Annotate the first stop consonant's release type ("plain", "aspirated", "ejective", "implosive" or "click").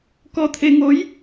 plain